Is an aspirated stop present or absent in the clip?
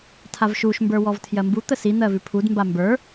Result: present